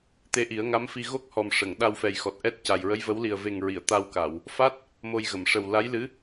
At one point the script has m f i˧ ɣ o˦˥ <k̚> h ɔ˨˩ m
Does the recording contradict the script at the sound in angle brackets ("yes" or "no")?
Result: no